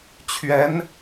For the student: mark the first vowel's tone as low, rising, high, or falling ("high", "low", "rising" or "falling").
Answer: rising